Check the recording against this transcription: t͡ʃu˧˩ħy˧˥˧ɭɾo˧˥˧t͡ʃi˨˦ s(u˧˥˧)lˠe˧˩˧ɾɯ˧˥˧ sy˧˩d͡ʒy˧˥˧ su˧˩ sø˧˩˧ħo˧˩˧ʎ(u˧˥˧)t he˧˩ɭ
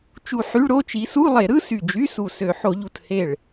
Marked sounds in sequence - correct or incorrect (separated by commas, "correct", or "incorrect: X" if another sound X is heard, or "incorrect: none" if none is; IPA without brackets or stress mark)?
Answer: correct, incorrect: u˧˩